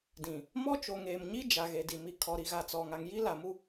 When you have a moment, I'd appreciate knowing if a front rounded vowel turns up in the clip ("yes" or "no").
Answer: no